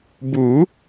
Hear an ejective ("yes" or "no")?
no